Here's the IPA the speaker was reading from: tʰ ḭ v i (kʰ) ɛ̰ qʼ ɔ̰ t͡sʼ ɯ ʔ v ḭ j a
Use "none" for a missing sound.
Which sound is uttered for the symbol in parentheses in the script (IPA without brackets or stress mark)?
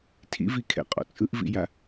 kʰ